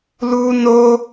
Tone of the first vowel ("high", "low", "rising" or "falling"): high